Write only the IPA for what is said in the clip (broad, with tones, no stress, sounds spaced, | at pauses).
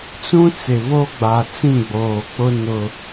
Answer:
t͡s ũ˦ t͡s ɪ˨ β o˦ ɡ͡b a˨ t͡s ĩ˦˨ ɡ͡b oː˨ k͡p ʊ˦ n ʊ˦